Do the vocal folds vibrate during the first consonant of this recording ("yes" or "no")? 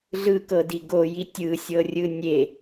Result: yes